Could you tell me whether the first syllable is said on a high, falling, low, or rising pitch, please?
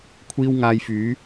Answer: high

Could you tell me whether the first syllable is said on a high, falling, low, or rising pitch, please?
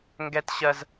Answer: high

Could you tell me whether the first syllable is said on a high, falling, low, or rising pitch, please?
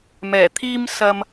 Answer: low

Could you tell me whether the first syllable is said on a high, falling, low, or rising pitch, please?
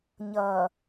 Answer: low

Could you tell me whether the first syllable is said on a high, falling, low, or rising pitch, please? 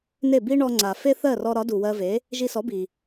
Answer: falling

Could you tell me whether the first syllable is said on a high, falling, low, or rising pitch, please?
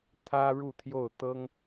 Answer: high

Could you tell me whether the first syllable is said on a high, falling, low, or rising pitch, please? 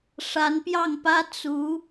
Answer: rising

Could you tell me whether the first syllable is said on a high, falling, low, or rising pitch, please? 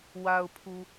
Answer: low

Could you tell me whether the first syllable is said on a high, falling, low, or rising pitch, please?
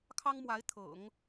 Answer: high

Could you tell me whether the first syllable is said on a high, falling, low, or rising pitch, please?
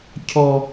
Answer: low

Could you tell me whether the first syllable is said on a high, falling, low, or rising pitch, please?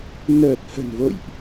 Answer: low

